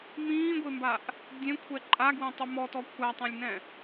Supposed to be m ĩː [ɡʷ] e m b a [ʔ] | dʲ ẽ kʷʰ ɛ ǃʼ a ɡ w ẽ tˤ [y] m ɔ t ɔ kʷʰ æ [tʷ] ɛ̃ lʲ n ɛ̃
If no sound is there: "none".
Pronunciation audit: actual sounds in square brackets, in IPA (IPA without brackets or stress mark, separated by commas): ɡʷ, ʔ, y, tˤ